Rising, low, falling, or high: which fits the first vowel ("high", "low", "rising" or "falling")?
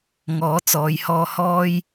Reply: rising